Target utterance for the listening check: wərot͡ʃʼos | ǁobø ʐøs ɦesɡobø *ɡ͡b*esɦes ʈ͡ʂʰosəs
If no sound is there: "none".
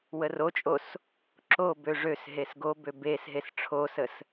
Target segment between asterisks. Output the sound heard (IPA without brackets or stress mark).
b